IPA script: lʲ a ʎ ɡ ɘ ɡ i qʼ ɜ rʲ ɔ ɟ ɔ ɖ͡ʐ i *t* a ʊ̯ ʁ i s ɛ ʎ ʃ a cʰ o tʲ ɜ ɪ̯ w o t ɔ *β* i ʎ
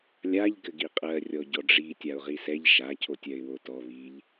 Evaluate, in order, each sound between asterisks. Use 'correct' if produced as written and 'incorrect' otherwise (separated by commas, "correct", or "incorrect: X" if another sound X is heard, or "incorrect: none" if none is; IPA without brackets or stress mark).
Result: incorrect: tʲ, correct